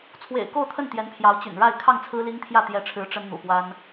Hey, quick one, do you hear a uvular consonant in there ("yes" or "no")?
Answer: no